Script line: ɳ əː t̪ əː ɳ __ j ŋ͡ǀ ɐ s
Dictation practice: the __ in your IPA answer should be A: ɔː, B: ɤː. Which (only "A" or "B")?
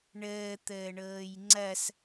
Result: B